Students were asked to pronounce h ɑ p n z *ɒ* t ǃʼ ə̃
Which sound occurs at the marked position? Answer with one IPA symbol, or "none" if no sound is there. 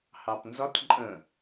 ɒ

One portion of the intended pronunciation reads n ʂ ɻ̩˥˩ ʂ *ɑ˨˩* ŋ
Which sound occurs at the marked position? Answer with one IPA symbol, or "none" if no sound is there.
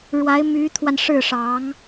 ɑ˧˥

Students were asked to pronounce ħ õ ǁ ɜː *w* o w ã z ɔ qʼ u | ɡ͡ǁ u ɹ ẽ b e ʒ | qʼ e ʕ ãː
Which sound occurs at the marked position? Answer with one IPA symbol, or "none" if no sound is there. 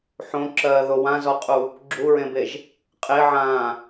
ð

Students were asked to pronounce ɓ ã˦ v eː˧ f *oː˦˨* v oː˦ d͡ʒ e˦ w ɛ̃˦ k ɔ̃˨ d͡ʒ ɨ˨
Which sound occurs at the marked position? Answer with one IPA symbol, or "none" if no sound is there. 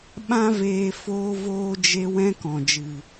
oː˦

